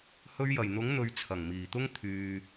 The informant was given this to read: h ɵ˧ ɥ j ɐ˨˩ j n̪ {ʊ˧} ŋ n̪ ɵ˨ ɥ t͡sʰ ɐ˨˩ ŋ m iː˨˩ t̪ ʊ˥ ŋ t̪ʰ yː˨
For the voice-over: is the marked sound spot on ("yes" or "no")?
no